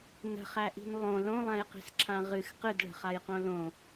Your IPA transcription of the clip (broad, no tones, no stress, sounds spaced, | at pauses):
n ə̤ χ æ ʔ i̤ n lˠ õ l õ lˠ æ̃ j q i̤ s ǁʰ ã ʁ ɨ x q ɨ d ɭ ə̤ χ a j q õ l õ